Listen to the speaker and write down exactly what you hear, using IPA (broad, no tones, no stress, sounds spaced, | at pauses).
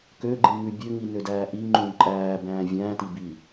k ø ɡ͡ǃ ĩ ŋ ʉ bʲ ø ŋ i n ø d æː ʔ i ŋ͡ǃ ũ ǃʼ æː b æ̃ː vʲ æ̃ː t i b i